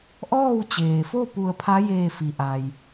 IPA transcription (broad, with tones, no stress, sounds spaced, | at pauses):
ʔ ɔː˥˨ w t͡ɕ eː˩ f o˥˨ p u˧˩ ə̯ pʰ a˧˥ j eː˧˩ f i˩ ʔ a˩ j